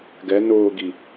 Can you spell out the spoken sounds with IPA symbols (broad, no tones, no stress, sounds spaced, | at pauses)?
ɡ ɛ n ʊː ɡ i